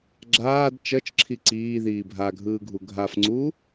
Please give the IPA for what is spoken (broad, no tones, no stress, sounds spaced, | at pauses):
ɡ͡ǁ aː d t͡ʃ ʌ t͡ʃ ǁʰ i ǀ iː ð iː bʱ a ɡʱ ɯː ɡʱ u ɡʱ a f ŋ͡ǀ uː